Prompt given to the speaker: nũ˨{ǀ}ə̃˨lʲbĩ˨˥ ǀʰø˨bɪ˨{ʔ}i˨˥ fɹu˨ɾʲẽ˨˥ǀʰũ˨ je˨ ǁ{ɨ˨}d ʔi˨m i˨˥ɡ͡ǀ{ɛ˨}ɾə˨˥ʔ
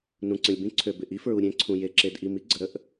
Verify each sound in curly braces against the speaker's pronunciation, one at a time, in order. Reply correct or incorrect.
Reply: correct, correct, incorrect: e˨, incorrect: ə˨

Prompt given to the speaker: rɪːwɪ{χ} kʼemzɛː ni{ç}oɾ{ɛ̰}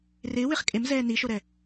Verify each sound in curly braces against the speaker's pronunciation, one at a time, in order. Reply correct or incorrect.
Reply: correct, incorrect: ʃ, incorrect: ɛ

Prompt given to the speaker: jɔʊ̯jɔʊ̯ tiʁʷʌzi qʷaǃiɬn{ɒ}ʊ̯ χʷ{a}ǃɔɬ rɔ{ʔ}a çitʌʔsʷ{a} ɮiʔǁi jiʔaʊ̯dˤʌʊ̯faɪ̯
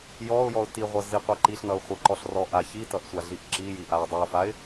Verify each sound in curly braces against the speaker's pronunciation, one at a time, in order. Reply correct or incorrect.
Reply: incorrect: ʌ, incorrect: ʌ, correct, correct

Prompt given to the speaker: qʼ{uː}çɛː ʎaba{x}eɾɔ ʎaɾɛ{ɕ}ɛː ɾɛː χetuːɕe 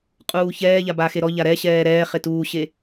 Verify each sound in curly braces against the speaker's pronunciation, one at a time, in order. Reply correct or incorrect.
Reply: correct, correct, correct

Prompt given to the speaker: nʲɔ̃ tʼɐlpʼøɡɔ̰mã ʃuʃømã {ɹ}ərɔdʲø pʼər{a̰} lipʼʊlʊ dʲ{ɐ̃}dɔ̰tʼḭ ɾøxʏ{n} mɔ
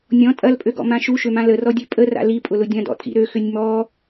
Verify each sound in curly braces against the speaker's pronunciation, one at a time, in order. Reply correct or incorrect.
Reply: incorrect: l, correct, correct, incorrect: nʲ

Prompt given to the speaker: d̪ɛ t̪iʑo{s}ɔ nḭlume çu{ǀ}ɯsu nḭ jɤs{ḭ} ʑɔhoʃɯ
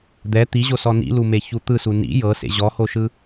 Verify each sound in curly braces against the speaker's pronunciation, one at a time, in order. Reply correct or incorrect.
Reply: correct, incorrect: t̪, incorrect: ḛ

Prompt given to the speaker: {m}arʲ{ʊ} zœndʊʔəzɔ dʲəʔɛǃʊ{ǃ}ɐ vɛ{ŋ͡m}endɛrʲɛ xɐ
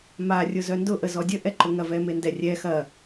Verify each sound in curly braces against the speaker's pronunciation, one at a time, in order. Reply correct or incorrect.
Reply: correct, correct, incorrect: ŋ, incorrect: m

